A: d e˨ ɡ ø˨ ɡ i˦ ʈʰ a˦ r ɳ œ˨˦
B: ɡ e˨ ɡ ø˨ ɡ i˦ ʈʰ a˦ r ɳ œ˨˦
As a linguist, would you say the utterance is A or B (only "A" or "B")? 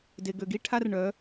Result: A